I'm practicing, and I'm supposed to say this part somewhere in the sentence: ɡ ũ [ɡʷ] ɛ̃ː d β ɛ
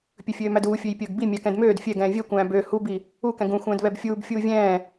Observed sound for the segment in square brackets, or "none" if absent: xʷ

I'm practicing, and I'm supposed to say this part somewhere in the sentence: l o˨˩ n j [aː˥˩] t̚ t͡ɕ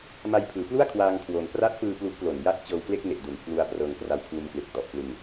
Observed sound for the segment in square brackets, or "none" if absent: a˥˩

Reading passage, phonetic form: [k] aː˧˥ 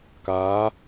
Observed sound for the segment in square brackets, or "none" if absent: k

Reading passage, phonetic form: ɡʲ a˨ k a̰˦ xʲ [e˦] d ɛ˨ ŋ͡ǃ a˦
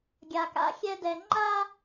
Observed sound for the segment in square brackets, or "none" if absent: ɛ˦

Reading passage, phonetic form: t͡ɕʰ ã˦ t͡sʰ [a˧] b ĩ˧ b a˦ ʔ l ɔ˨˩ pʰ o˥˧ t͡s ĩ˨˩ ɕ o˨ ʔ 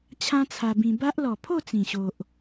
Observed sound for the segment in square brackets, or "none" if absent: a˧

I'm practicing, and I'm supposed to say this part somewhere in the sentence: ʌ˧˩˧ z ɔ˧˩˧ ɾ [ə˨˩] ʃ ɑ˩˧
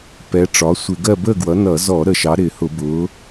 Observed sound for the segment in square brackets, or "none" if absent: ə˨˩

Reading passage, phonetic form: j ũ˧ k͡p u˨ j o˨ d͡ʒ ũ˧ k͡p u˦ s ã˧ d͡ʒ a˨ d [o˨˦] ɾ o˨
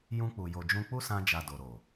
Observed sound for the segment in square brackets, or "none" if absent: o˨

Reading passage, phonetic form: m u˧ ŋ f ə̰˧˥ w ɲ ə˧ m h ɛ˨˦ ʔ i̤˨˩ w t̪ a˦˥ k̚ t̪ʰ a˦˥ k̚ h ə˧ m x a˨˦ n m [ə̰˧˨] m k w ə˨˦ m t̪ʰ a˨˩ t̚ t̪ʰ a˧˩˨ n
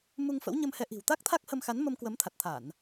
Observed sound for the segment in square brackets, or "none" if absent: ə˧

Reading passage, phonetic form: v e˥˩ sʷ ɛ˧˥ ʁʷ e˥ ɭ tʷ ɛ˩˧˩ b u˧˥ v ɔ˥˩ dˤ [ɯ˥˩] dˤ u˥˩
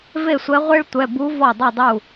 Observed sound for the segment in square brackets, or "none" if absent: u˥˩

